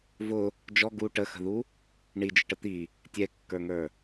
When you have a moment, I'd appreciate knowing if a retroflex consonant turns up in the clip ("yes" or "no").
yes